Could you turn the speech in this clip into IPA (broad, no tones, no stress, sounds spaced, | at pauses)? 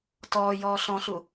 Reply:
t ɔː j ɔː ɬ ɔ̃ ɬ u